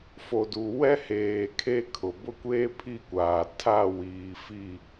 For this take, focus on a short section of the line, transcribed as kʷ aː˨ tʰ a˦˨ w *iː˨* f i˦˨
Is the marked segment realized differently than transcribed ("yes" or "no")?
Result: no